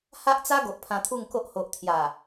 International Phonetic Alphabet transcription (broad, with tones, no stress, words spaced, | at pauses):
ha˦ʔt͡sa˦ ɡo˨ʔpʰã˧t̪ʰu˥˧ŋko˦ʔ ho˨ʔt̪ʰja˨˩